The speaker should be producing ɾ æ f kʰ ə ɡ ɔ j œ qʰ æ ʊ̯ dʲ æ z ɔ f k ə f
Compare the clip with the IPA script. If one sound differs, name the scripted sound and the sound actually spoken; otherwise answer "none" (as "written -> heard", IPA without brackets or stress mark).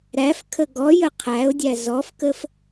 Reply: œ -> ə